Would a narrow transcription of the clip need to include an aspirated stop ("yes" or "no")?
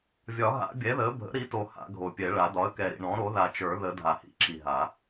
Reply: no